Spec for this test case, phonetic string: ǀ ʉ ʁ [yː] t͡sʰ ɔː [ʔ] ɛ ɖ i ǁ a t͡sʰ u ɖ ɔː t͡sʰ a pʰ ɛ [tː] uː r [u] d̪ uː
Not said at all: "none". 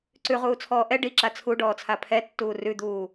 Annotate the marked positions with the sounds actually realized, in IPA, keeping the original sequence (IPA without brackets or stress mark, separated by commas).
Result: uː, ʔ, tː, ʉ